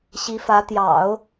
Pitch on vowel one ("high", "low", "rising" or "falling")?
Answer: rising